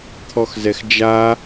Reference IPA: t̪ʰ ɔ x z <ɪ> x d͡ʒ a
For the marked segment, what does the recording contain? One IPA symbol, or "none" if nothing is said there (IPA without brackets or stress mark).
ɛ